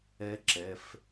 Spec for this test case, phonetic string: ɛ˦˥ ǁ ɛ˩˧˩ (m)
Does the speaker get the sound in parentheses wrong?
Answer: yes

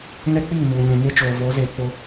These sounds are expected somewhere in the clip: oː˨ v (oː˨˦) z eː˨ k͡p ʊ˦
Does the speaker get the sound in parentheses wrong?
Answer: no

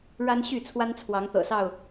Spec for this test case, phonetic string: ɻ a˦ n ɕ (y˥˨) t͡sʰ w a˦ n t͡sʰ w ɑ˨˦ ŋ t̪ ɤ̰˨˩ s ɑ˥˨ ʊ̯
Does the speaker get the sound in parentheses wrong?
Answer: no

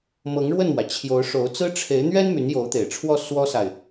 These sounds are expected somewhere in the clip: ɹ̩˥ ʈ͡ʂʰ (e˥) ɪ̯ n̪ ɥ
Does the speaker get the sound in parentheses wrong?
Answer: yes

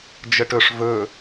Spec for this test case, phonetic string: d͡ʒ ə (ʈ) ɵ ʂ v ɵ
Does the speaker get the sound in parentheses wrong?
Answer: no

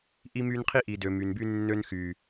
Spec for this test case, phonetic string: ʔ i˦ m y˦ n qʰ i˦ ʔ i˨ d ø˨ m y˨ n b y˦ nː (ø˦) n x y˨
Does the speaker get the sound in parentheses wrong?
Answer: no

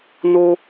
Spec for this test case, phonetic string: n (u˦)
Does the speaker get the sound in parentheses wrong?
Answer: yes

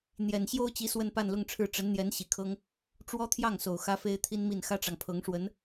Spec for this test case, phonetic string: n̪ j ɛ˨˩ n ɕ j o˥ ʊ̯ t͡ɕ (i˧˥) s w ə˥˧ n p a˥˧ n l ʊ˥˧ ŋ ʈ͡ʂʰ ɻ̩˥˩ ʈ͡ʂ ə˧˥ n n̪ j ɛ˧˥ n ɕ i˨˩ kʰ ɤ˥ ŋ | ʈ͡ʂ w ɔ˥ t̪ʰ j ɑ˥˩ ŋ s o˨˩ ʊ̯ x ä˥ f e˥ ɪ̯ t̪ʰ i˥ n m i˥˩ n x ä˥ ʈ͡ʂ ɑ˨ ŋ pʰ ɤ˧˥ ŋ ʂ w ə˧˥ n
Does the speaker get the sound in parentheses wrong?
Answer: no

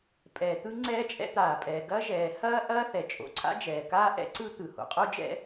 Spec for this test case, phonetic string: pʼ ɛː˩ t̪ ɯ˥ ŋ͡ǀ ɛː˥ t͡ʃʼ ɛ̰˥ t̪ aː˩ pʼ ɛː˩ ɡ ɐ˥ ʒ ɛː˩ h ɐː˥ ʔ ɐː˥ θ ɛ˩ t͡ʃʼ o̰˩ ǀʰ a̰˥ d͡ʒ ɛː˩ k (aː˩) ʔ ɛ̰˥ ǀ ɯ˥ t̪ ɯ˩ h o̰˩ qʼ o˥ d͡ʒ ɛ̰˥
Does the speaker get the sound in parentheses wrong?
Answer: yes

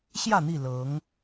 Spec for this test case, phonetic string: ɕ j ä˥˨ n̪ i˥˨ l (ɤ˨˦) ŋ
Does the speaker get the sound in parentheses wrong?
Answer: no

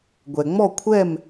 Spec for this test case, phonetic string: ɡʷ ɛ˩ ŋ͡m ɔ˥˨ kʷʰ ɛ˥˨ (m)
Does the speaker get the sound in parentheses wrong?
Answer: no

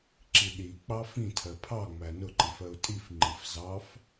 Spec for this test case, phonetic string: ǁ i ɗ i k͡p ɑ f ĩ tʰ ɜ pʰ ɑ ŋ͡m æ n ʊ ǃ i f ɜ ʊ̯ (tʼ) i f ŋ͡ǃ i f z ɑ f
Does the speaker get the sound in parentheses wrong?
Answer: no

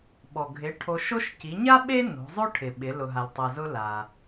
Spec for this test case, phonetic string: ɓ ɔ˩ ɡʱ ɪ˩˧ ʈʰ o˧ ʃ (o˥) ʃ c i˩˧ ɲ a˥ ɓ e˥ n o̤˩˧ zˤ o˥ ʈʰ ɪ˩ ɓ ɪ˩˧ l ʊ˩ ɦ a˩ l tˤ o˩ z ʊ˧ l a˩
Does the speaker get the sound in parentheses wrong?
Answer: no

